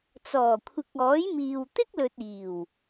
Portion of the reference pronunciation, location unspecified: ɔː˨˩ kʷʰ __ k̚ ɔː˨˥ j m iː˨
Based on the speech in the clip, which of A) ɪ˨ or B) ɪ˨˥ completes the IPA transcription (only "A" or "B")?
A